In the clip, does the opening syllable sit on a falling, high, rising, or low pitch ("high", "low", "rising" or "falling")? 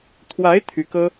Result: rising